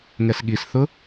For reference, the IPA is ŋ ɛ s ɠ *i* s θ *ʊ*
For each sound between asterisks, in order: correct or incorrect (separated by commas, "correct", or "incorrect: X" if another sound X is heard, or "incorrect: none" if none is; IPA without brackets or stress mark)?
correct, correct